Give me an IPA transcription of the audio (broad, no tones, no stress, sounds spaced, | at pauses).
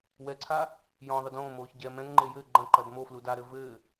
w ɛ ǀʰ a | j ɔ̃ ðˤ ɨ d õː m oː ç ɟ ɛ m ɛ̃ ŋ ŋ͡ǃ e j ɘː ɡ͡ǃ ɐ̃ ǃ ɐ d m o f l u d a ɾ ɘ v ɘː